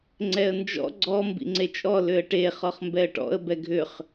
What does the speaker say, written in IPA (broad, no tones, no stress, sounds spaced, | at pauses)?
ŋ͡ǀ ɛ ə̯ n d͡ʒ ɔ̰ ɡ͡ǀ ɔ m b ḭ ŋ͡ǀ e t͡ʃʼ ɔ l ʏ ə̯ ʈ e χ ɔ χ m b ɛ ə̯ ʈ ɔ̰ ə̯ b ɛ ɡʱ ʏ χ